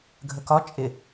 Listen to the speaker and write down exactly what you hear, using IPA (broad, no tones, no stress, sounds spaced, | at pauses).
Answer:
ɡʱ ə k ɒ t͡ʃʼ ɪ